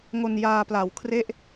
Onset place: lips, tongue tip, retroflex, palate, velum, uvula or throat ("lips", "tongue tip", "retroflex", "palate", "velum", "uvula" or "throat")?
velum